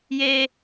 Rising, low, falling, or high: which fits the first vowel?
high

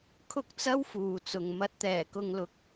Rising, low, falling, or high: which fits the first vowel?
high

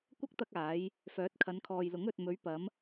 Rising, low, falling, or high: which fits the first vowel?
high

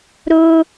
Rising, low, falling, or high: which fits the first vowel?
high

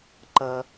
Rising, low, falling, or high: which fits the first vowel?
low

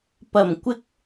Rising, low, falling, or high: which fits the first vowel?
low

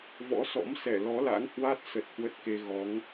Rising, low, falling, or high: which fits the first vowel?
rising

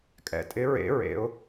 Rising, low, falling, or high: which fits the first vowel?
low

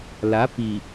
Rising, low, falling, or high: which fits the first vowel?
rising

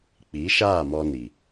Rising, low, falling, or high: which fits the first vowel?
rising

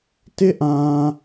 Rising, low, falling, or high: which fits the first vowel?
high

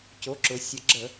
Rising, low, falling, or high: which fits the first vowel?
rising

